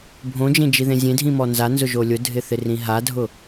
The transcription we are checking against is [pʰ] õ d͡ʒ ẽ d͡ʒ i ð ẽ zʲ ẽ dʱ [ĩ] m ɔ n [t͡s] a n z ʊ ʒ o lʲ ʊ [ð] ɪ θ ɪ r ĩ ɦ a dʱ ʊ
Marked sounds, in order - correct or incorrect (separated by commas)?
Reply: incorrect, correct, incorrect, incorrect